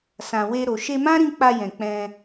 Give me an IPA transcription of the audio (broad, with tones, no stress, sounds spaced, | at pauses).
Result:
s ã˨ w e˧ ɾ o˨ ʃ e˧ m ã˦ ɾ ĩ˧ k͡p a˧ j ɛ̃˨ k͡p ɛ̃˧